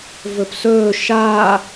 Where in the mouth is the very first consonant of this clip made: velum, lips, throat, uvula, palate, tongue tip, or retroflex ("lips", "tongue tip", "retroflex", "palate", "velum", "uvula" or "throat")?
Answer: lips